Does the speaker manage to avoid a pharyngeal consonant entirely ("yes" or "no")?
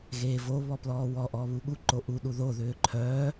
yes